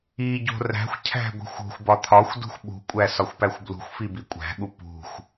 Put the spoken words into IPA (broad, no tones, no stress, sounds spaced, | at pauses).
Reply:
i ɟ o̤ r æ̤ xʷ cʰ æ̤ ɡʷ i̤ xʷ o̤ xʷ b ɒ t̪ʰ ɒ xʷ d ṳ xʷ ɓ ṳ kʷʼ æ s ɒ xʷ p æ xʷ b l ṳ xʷ f i b i kʷʼ æ̤ ɠ u p ṳ xʷ